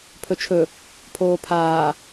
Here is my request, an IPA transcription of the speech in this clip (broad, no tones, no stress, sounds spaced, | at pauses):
pʰ ɵ t͡ʃʰ ɵ | pʰ oː pʰ aː